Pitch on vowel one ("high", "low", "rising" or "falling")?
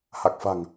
low